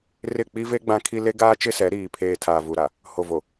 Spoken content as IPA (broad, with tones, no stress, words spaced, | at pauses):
rɪ˦˨ k͡pi˦ve˦ ɡ͡bã˦kʰi˦ le˦ɡaː˦t͡ʃɪ˦sɛ˨˦ ɾiː˨pʰeː˨ tʰaː˨vu˨ɾa˨ | ho˨vo˨